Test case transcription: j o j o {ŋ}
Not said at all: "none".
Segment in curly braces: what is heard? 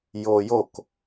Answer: k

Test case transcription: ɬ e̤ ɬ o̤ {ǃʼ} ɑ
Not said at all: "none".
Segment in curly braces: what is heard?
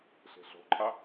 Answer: ǃʼ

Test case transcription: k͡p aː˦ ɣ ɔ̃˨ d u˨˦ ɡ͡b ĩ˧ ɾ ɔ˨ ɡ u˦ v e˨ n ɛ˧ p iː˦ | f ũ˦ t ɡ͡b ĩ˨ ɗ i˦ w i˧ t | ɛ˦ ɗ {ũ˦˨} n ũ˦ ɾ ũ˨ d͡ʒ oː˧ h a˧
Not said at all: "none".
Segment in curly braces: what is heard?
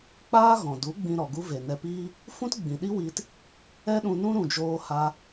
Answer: ũ˧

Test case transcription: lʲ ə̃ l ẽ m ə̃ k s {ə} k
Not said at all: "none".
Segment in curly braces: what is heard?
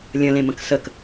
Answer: ə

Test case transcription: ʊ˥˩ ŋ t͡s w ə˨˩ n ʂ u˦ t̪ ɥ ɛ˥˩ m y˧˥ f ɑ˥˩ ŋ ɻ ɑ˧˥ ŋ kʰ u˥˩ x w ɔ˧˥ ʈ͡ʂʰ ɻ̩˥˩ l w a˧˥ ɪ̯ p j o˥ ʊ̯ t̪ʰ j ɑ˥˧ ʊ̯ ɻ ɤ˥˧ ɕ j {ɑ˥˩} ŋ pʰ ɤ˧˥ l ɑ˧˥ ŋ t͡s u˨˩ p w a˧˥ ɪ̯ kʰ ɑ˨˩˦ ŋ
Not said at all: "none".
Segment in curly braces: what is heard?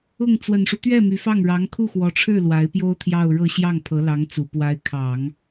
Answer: ɑ˥˩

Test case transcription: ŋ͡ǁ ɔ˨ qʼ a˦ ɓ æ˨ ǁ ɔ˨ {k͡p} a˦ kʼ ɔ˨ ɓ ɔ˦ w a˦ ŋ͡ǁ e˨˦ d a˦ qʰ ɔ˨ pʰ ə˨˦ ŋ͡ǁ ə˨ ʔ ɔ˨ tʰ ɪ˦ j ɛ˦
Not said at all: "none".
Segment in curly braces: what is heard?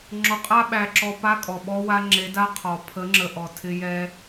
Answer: p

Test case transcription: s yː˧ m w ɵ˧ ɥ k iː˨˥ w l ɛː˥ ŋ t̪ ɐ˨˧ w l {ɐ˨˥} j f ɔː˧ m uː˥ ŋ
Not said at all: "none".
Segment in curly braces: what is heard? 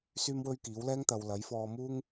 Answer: ɐ˨˥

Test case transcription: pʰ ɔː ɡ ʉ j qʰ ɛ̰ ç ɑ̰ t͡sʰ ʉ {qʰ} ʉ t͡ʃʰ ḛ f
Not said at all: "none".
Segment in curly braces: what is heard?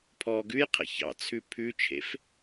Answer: pʰ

